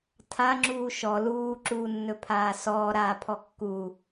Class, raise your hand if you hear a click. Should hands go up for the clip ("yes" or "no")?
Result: yes